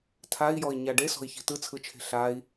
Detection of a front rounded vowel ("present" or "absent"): absent